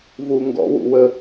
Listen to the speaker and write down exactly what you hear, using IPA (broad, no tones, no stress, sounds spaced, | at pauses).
v u ŋ ɡ ɔ̰ w ṵ w ə